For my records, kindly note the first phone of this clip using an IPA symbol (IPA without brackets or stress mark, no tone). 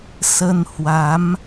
s